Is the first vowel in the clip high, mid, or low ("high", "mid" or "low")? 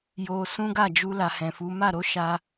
mid